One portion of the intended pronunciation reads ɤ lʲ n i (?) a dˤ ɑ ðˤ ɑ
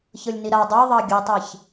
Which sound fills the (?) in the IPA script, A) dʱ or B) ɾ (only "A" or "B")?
B